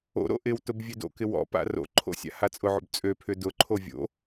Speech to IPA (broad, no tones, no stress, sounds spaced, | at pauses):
o̰ ɾ o̰ ʔ ɪ w t ʊ b vʲ ø d o̰ k ɪ w ɔ̰ p a̰ r o̰ ǃʰ o̰ sʲ a̰ h a t͡sʼ ʊ ʕ o̰ b t͡sʼ ø pʰ ʏ d ʊ ǃʰ o vʲ o̰